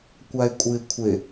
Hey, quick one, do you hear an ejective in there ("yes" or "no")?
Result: yes